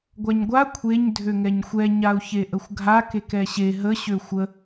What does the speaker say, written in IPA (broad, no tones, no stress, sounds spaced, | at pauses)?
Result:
ɡʷ a ɲ ɡʷ a kʷʰ e ɲ dʱ ø ŋ ɛ ɲ xʷ ɛ ɲ a u̯ ç e ʔ ə xʷ ɡʱ a k e k ɛ ɕ e ɦ ə ɕ ø xʷ ə